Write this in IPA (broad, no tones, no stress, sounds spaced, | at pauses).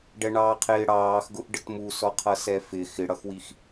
ɖ ɛ ɳ ɑː qʰ ɪː ɽ ɑː x ɡ ʊ ʔ ɖ ə t m u s ɔ qʰ ʌ s ɛ f ɪ x ɪ ɽ ʌ x w i x